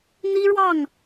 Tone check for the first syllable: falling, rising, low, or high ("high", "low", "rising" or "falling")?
high